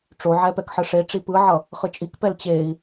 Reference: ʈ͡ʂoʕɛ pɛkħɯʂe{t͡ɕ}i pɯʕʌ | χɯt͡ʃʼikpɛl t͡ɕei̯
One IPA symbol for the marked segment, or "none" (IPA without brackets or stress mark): ʈ͡ʂ